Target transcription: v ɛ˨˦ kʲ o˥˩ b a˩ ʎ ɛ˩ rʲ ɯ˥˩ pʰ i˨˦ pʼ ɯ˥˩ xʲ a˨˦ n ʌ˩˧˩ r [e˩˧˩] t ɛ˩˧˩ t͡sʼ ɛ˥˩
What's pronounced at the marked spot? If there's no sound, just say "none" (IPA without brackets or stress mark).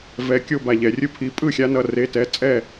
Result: e˩˧˩